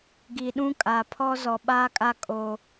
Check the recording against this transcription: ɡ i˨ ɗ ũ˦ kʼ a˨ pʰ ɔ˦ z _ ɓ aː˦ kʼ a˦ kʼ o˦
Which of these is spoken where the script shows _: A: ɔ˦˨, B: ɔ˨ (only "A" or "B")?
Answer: B